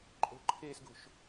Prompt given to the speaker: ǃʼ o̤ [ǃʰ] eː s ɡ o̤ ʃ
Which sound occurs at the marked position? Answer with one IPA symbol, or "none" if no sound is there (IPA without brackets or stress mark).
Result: ǃʰ